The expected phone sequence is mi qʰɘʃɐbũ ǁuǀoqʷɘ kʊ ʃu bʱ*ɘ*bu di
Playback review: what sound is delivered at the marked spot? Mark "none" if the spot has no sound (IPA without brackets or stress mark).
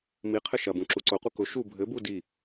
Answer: ɘ